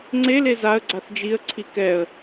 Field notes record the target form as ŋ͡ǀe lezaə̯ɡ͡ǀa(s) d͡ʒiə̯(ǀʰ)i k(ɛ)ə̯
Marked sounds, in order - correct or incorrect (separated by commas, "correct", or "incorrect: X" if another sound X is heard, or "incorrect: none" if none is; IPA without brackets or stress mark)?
incorrect: θ, correct, correct